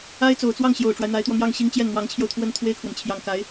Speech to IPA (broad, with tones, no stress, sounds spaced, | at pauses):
a˥ ɪ̯ t͡s o˨˩ ʊ̯ t͡s w ɑ˥˩ ŋ ɕ j o˨˩ ʊ̯ ʈ͡ʂ w a˦ ɪ̯ n̪ a˧˥ ɪ̯ t̪ w ɔ˧ n̪ j ɑ˥˩ ŋ ɕ i˥ ŋ t͡ɕ j ɛ˥˩ n n̪ w ɑ˧˥ ŋ t͡ɕʰ j o˧ ʊ̯ t̪ʰ w ə˥ n t̪ʰ w e˥ ɪ̯ kʰ w ə˨ n t͡ɕʰ j ɑ˧˥ ŋ k a˧˥ ɪ̯